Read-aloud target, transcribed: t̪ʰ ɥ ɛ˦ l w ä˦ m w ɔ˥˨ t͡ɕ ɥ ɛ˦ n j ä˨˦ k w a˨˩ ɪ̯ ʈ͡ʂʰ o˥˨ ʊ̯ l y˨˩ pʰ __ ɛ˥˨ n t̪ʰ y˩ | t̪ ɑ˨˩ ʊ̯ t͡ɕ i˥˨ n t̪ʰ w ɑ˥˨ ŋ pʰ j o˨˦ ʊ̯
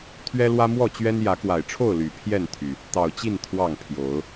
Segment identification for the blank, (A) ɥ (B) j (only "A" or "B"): B